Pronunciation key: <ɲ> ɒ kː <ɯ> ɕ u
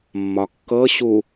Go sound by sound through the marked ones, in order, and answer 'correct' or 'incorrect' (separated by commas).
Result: incorrect, incorrect